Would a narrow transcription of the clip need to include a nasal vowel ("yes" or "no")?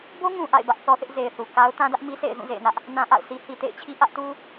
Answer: yes